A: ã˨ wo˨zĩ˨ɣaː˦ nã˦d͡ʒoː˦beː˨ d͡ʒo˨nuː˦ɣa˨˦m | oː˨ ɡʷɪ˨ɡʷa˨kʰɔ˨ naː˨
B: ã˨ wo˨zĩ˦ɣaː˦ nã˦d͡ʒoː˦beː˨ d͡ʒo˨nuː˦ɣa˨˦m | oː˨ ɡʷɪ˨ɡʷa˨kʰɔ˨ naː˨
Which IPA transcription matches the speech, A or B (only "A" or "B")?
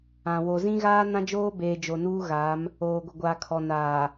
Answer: B